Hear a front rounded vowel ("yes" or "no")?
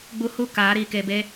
no